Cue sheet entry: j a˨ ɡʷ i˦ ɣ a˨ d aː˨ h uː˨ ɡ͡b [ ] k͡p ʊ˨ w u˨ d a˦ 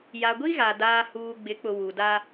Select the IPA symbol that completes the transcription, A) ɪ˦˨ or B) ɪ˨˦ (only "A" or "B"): B